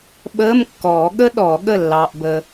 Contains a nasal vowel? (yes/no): no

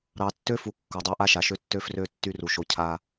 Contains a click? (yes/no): no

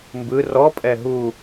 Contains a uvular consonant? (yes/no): no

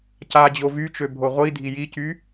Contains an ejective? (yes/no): no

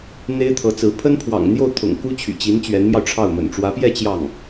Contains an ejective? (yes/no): no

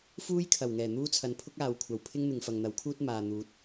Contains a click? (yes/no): no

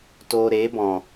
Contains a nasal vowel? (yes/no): yes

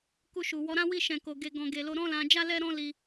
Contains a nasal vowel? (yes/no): yes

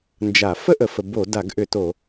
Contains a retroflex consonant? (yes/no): no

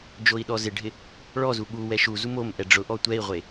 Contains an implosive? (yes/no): yes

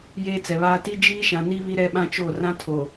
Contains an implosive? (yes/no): yes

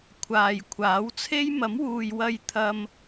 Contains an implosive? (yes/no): no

